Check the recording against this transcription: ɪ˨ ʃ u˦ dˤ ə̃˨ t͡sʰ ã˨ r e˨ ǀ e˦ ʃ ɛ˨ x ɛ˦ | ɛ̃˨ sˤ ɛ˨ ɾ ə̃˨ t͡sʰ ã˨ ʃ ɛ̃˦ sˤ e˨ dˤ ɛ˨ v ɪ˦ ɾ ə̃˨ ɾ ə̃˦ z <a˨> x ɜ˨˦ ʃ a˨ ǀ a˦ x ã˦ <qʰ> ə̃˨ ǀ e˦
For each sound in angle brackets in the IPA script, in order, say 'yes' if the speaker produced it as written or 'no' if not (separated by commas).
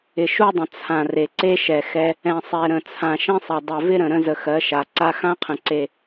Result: no, yes